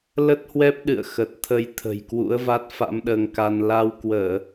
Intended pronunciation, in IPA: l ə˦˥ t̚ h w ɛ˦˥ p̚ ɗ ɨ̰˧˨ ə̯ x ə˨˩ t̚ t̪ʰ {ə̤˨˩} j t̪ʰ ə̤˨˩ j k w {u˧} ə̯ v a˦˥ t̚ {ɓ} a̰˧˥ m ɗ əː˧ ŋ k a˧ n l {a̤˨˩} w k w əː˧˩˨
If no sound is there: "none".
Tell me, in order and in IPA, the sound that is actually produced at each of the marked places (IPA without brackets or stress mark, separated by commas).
ə˧, ṵ˧˥, f, a˧